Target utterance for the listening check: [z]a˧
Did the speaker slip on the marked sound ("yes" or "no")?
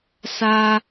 yes